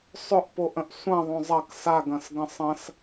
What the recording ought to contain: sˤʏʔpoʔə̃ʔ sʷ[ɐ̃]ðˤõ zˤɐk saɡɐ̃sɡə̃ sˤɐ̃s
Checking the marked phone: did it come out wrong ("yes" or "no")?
no